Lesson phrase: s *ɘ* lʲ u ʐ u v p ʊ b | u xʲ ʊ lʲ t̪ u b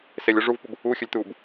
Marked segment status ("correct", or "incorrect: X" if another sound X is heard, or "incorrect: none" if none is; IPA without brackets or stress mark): incorrect: e